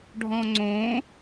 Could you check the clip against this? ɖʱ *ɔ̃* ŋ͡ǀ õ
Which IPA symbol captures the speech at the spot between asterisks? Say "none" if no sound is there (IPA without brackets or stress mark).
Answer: ɔ̃